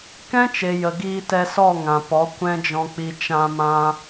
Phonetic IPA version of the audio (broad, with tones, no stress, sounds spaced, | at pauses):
k ɛ̃˦ t͡ʃ e˨ j ə˨ ɡ iː˧ t ɛ˧ s ɔ˦˨ ŋ ã˨ p ɔ˨˦ kʷ ɛ̃˦ d͡ʒ ɔ̃˧ k͡p i˧ t͡ʃ ã˧ m ã˧